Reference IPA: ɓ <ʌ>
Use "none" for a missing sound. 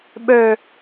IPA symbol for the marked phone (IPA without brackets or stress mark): ə˞